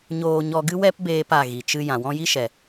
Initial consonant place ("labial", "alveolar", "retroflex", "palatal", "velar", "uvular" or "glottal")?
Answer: palatal